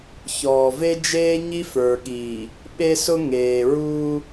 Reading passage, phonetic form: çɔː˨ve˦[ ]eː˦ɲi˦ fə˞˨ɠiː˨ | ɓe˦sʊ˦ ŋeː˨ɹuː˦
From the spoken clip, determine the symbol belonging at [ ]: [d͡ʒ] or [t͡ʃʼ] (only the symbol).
d͡ʒ